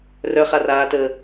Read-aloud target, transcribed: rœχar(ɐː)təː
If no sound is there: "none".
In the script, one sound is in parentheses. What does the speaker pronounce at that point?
aː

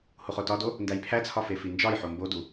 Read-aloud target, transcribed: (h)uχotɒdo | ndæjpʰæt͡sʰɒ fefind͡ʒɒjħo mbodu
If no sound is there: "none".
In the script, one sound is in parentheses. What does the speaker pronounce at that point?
h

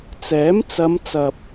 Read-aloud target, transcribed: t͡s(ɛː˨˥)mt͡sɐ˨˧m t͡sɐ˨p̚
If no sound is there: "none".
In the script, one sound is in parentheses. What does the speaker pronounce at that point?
ɛː˨˥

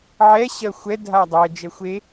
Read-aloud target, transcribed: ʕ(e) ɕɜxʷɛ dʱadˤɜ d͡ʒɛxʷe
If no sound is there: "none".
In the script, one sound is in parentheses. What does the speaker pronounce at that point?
ɛ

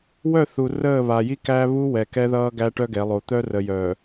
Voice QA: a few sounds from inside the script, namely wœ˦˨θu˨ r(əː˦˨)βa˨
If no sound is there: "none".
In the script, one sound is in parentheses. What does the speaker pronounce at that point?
əː˦˨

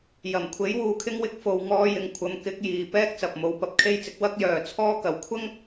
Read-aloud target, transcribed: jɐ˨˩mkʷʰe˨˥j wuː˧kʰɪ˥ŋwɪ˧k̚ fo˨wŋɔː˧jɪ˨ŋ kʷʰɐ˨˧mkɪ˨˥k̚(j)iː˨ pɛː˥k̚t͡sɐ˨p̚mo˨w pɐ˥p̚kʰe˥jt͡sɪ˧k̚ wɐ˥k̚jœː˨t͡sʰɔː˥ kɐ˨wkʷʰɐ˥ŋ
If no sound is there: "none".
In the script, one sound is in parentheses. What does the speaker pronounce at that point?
j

